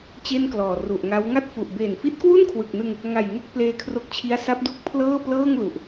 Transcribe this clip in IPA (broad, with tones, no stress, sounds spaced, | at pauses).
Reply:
t͡ɕ e˥˩ n k l ɔː˨˩ r u˨˩ ʔ ŋ a˦˥ w ŋ a˥˩ t̚ f u˨˩ ʔ b eː˨˩ n f i˦˥ t̚ k w u˥˩ n kʰ w ɯ˨˩ k̚ n ɯ˧ ŋ | ŋ a˨˩ j ŋ e˥˩ k̚ p l eː˧ kʰ r o˦˥ k̚ t͡ɕʰ i˦˥ a̯ s a˦˥ p̚ d u˦˥ k̚ pʰ l ɤː˥˩ p l ɤː˥˩ ŋ l u˨˩ ʔ